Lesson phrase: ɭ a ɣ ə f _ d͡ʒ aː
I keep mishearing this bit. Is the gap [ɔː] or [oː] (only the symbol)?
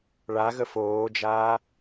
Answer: oː